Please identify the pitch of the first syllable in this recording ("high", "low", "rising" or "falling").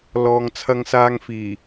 low